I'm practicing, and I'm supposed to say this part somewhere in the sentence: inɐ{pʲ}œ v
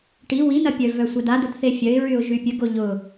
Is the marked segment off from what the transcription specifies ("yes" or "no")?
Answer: no